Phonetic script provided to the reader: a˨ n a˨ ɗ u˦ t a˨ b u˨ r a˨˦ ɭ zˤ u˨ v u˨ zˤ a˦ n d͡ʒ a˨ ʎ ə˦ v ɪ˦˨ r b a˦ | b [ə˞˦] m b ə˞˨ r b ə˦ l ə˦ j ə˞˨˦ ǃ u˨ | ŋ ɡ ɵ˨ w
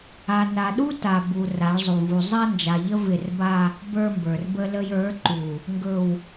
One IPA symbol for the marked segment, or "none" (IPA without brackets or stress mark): ə˞˦